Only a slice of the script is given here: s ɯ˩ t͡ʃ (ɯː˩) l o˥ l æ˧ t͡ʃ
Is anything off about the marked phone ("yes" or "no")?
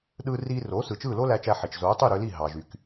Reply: yes